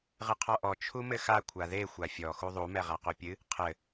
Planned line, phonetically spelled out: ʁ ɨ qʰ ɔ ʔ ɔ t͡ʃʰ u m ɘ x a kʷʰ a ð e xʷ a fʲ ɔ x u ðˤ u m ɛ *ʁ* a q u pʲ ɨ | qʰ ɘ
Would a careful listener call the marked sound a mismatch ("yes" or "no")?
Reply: no